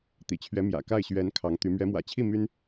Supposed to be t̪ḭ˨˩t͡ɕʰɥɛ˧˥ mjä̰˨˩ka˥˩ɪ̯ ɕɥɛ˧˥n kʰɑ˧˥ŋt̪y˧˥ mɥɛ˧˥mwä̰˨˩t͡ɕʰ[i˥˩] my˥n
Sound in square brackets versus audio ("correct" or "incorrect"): correct